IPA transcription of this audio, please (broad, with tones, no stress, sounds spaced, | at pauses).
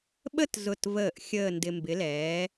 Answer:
ɓ ə˥˧ t z ʊ˧˩ t v əː˧˩ ʔ xʲ əː˥˧ n d ɪ˧ m b ɪ˨˥ l ɛː˨˥